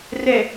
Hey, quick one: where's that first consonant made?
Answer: tongue tip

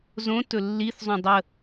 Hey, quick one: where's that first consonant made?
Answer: tongue tip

